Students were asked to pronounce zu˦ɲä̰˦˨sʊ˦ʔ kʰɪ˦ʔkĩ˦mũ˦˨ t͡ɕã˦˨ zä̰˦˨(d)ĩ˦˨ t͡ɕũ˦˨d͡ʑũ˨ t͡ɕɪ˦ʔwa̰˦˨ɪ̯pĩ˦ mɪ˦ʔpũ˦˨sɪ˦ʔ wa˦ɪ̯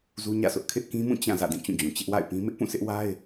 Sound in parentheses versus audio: correct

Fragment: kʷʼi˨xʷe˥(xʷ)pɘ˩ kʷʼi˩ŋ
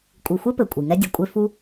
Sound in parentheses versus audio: incorrect: none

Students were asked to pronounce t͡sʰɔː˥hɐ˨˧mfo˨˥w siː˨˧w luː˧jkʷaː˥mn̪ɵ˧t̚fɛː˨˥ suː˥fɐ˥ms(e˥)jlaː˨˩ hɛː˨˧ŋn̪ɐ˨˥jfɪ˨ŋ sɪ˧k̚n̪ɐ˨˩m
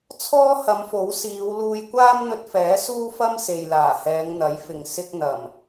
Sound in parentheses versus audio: incorrect: e˨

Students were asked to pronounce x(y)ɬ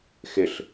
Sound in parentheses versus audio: incorrect: ɪ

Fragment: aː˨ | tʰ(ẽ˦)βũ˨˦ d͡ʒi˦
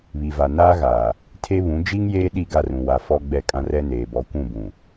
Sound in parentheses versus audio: incorrect: e˦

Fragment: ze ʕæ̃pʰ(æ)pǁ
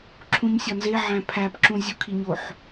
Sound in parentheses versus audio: correct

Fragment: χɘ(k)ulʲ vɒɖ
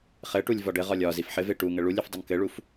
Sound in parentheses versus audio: incorrect: ʈ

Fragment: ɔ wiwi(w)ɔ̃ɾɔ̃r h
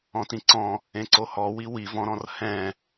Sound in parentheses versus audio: incorrect: v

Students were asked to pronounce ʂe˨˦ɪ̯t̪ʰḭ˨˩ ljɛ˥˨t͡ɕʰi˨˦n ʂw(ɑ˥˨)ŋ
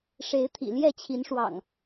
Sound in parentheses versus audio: incorrect: ɑ̰˨˩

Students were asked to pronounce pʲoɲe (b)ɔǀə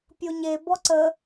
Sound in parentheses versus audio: correct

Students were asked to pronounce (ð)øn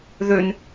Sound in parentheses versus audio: correct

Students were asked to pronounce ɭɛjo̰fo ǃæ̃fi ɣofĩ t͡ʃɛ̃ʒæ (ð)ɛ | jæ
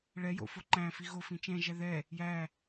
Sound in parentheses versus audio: correct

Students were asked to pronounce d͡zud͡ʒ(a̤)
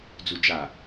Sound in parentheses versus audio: incorrect: a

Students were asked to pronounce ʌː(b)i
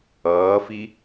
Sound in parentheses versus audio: incorrect: f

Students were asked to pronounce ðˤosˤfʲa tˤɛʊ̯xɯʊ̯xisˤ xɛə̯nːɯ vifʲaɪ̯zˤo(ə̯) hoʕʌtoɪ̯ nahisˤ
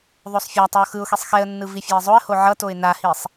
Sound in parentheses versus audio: correct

